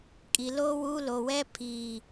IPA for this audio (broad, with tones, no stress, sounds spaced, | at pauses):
kʼ i˨ l o˦ w u˦ l o˨ w ɛ˦ pʰ iː˨